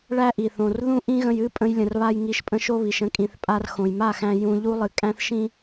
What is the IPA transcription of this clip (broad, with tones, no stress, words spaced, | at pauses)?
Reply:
ɭæ˦ʔi˨θõ˨r ðũ˦ʔĩ˦ɣə̃˧jɨ˦ pʼə̃˧jlʲə̃˨rβa˧j ŋi˧ʃ pʼə̃˦ʃo˦βi˨ʃə̃˦ kʼĩ˨θ pʼa˧rxõ˨jma˦˨xæ̃˧ jũ˧ ʎu˦ lˠɨ˨kʼæ̃˦θʃĩ˦